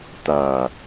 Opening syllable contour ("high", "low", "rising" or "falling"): low